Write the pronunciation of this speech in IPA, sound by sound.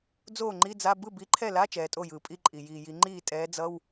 d͡z oː˥˩ ŋ͡ǃ i˧˥˧ d͡z a˧˥˧ b ɯ˥˩ b i˨˥ ǃʰ ɛ˥˩ l a˧˥˧ t͡ʃ ɛː˩˧ tʼ o˥˩ j ɯː˩ pʼ i˧˥˧ ǃʼ i˩ j iː˩ j i˩˧ ŋ͡ǃ iː˥˩ tʼ ɛː˨˥ d͡z ʌ˧˥˧ w

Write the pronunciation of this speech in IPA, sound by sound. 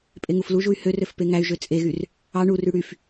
pʼ e ŋ u f l u ʒ u y̯ h ø r ø f p e ŋ æ y̯ ʒ ø t͡sʼ e ɣ y r | ɑ ɳ u r y ɽ y f

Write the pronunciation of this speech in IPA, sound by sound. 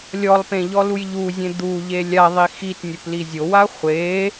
lʲ ɔ lˠ p ẽ ʎ ɔ l u j ʎ u zʲ ẽ d̪ u ʎ e lʲ a ðˤ i x i t nʲ o p l i zʲ o w a χʷ e

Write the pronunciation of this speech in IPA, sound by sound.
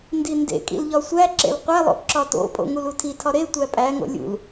n d i n d ḛ kʼ ḭ l ʎ ɒ sʷ æ ǁ ḛ l qʷ æ lˠ o̰ ǁ ɒ t o̰ pʼ o̰ ŋ u l u tʰ i tʰ ɒ ɾ e tʷ æ pʼ æ ŋ o̰ lʲ ṵ l

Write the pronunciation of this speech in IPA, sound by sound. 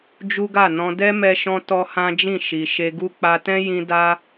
d͡ʒ u˦ ɡ a˦˨ n ɔ̃˧ d ɛ˦ m ɛ˧ ʃ ɔ̃˧ t ɔ˦ h ã˦ d͡ʒ ĩ˦˨ ʃ i˨ ʃ e˧ ɡ u˦ k͡p a˧ t ɛ̃˦ j ĩ˧ d a˦

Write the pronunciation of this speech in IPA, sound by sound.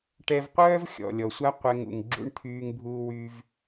ʈ ɛ˧ v qʷ œː˦ v xʲ ɔ̰˨ lʲ ɔ˨ sʷ a˦ qʷ ɛ˧ ŋ ṵ˨ ŋ ɡ͡ǁ ṵ˧ ɳ t̪ʰ yː˧ ŋ bʱ uː˧ w yː˦ v

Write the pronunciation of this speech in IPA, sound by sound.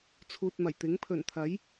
t͡sʰ uː˨ t̚ m ɐ˨˩ j t̪ ɪ˨˥ ŋ pʰ ɵ˨˩ n t̪ʰ ɐ˨˥ j

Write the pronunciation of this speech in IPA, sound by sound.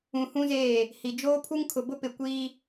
ũ˨ h ũ˦ z eː˦˨ | h i˨ d͡ʒ oː˦ pʰ u˦ ŋ kʰ ʊ˨ b ʊ˦ p ɪ˨ kʷ iː˦

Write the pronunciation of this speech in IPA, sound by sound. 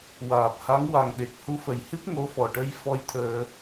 w aː˨˩ p̚ h a˧˥ ŋ w a˨˩ ŋ ɗ e˨˩ k̚ h u˧˥ f ə˨˩ j h ɨ˦˥ p̚ ŋ o˧˥ f ɔ˨˩ ʈ ə˧ j f ɔ˧ j t̪ʰ əː˧

